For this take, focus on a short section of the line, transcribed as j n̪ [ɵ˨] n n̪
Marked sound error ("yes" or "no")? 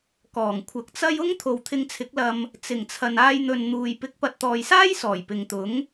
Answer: no